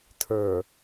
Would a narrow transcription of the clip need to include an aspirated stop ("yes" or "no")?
yes